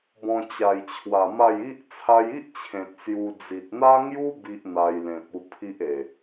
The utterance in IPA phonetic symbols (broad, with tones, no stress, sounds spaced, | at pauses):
b ɔ̃˧ t͡ɕ a˨˩ j t͡ɕʰ w a˨˩ m a˥˧ j i˦ ʔ t͡sʰ a˧ j i˦ ʔ t͡ɕʰ ẽ˨ t̚ s j u˧ d͡z i˨ t̚ n̪ a˦ ŋ j u˦ b i˦ ʔ n̪ a˧ j l ẽ˨ p̚ u˧ pʰ i˦ ʔ e˨˩